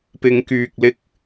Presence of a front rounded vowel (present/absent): present